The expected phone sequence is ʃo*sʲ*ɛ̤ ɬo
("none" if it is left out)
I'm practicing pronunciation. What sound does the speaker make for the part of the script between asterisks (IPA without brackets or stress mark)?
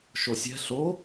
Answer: sʲ